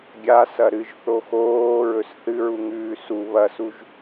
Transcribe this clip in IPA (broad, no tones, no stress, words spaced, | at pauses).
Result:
ɡʲasɐ ɾɨʒθo xoːɹɵs θɨɹuŋʉː su βɐsuʒ